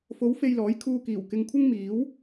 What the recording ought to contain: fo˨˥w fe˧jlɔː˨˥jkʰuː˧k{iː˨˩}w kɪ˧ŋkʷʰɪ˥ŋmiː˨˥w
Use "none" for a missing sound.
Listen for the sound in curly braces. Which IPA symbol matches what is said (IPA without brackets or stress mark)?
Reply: iː˨˩